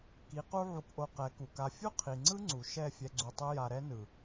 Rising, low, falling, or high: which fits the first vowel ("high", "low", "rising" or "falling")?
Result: rising